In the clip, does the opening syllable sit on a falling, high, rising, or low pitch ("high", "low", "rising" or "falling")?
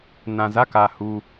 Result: low